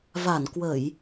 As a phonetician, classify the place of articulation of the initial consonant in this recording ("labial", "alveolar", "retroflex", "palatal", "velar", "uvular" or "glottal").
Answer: labial